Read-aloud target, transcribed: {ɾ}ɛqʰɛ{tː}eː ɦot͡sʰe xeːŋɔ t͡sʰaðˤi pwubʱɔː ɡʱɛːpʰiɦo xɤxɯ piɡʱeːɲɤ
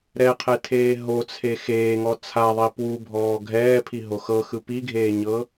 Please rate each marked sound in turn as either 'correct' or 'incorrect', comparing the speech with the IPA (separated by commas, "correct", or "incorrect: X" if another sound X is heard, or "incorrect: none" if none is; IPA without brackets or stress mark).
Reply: correct, incorrect: tʰ